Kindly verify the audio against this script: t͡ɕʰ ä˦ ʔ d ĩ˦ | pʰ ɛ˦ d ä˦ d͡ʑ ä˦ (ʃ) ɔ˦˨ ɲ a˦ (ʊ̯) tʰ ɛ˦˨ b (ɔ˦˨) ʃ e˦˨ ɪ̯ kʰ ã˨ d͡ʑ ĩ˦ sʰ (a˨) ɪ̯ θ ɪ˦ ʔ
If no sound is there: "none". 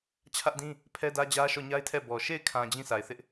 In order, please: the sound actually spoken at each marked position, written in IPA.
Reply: ʃ, ɪ̯, ɔ˨, a˨

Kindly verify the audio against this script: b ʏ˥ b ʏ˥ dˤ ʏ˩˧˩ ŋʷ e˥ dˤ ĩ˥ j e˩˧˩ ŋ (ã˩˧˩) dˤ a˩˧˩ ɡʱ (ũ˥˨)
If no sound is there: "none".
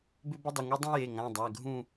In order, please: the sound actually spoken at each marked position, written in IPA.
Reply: ã˩˧˩, ũ˥˨

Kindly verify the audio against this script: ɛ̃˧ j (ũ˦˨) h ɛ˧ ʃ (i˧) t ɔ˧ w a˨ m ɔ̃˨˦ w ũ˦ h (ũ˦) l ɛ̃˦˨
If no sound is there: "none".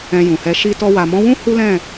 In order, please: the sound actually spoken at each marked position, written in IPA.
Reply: ũ˨, i˧, u˦

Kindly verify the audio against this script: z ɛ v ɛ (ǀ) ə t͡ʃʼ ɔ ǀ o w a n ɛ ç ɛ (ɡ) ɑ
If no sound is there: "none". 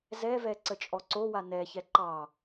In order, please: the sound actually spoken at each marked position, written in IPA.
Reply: ǀ, ǃ

